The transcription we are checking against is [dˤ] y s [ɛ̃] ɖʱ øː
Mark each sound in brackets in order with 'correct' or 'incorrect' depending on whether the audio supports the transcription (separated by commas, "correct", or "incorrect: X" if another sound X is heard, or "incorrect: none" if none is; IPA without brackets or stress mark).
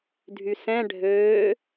incorrect: dʱ, correct